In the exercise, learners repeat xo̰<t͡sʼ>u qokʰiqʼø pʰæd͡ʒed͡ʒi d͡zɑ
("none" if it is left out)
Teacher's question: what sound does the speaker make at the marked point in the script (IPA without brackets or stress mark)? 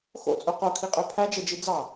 t͡sʼ